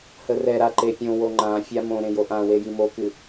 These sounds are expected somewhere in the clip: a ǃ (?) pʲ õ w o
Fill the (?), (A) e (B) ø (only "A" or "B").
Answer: A